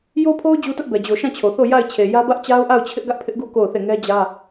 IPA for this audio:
jo˦pʰo˦ʊ̯ d͡ʑu˦tʊ˦ʔbɛ˨ d͡ʑo˨ʃã˦˨t͡ɕʰo˨θo˦˨ ja˦˨ɪ̯t͡ɕʰe˨jä˦ bä˦ʔt͡ɕa˦ʊ̯ʔa˦˨ʊ̯ t͡ɕʰɪ˦ʔɡä˦ʔpʰɪ˦ʔɡu˦ ko˦˨ʊ̯θe˦˨ ŋɛ˦d͡ʑä˦

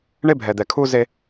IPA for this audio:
ɳe˦bʱɛ˨d̪ɛ˨ kʰu˦ze˦

